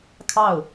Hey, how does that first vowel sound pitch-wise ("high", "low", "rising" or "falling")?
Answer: falling